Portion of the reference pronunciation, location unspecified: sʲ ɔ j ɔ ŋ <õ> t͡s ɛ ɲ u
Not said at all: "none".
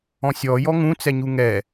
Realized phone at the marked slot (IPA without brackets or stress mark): ũ